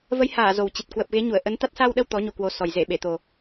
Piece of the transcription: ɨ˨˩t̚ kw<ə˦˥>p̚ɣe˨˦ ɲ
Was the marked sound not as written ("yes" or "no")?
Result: yes